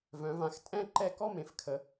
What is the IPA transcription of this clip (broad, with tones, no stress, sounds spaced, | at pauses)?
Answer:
v œ̃˩˧ v ã˩˧ x tʼ ɛ̃˥˧ ǃ ɛ˥˧ k ɔ˥˧ m ẽ˩˧ f kʰ ə˩˧